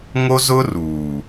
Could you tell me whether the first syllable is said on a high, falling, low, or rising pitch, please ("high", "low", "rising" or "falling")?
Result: high